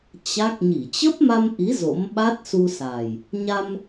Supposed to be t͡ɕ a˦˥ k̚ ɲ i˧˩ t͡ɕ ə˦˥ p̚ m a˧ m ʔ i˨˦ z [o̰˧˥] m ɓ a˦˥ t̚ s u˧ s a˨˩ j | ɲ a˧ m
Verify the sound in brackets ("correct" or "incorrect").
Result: correct